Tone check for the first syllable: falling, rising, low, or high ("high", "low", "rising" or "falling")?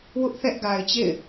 high